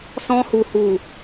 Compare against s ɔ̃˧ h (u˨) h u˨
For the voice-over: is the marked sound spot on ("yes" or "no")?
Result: yes